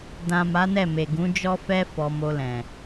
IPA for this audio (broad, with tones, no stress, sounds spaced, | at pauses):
d ã˨ m a˨˦ n ɛ˦˨ m e˨ ɡ ũ˨˦ d͡ʒ ɔ˦ f ɛ˦ f ɔ˧ m o˧ l ɛ̃˨